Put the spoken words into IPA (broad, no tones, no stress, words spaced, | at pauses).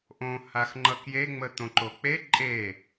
ʔõ haxŋ͡ǃʌkje ŋ͡mət̪õǃok͡pe ǃʼe